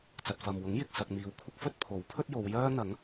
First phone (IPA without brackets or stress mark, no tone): t͡s